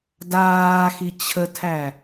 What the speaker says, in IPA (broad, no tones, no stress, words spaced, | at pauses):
daːxi t͡ɕʰətʰæ